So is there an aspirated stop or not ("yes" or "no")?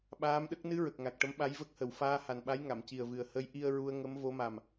no